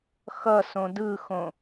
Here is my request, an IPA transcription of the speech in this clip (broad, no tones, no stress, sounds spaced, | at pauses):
x ʌ s õ d ɯ x õ